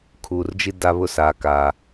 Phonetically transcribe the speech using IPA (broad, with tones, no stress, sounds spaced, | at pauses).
kʰ uː˨ r d͡ʒ i˦ d a˦ β ʊ˦ s aː˨ k aː˨